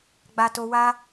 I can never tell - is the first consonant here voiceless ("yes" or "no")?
no